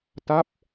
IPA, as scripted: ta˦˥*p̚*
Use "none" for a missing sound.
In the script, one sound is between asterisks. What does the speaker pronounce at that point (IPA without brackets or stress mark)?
p̚